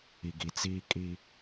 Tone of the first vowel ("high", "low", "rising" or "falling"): low